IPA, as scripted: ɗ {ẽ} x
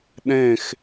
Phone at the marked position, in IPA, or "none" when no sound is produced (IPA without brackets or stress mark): ẽ